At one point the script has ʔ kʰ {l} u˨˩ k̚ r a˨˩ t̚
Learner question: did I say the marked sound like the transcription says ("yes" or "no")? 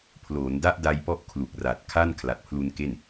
yes